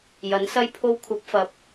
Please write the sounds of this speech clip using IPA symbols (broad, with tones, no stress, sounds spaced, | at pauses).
j ɐ˨˥ n s ɐ˥ j pʰ o˧ w kʷʰ ɐ˨˥ p̚ f ɐ˨˥ p̚